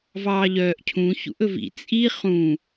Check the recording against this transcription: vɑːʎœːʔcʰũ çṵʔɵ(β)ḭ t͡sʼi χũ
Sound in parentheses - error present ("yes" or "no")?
yes